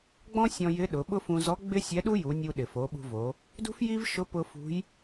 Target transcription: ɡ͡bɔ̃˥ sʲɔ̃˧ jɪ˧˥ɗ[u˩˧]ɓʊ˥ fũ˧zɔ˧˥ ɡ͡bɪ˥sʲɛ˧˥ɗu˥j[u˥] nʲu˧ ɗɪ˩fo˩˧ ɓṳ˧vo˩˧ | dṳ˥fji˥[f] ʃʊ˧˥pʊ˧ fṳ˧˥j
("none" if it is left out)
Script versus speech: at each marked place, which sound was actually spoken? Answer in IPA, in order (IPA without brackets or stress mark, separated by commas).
ʊ˩˧, u˩˧, v